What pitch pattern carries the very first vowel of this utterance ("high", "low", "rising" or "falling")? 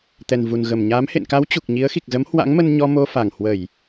low